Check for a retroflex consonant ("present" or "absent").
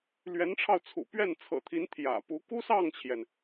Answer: present